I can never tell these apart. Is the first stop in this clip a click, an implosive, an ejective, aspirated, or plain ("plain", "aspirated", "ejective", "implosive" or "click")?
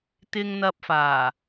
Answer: plain